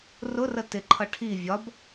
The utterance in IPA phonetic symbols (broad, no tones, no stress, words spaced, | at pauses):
rʊrə tɪǃʰʌ ʈʰi vʲɒb